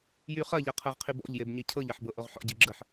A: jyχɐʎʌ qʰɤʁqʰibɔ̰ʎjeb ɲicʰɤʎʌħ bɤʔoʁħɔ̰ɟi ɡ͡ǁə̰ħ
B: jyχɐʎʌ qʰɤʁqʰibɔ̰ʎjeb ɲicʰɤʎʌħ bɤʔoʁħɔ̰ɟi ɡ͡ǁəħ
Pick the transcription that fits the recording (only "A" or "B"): B